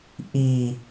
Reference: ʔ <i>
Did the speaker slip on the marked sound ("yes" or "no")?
no